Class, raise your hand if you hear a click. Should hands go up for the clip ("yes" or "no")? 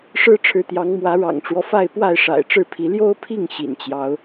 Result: no